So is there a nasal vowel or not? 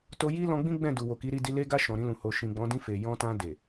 yes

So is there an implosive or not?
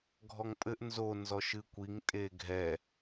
no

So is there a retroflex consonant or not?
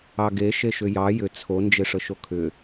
yes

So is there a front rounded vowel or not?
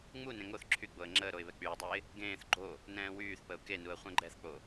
yes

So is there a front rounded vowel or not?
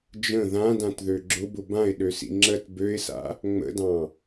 yes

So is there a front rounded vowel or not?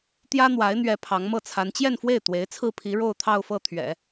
no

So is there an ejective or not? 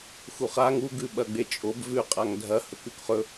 yes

